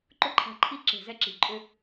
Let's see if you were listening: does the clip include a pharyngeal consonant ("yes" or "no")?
no